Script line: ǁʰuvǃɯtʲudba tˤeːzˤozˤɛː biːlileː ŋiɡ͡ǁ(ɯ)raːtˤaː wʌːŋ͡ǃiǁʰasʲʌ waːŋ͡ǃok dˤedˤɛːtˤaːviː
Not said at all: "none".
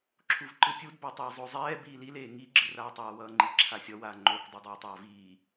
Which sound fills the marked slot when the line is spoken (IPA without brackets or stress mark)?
ɯ